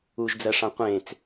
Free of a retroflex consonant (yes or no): no